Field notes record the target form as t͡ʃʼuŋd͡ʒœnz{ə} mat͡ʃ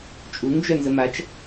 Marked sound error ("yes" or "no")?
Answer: no